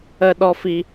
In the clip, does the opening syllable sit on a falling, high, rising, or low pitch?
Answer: high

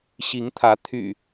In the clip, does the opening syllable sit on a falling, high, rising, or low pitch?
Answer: rising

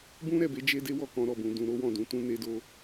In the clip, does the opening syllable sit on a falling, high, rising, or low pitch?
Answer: high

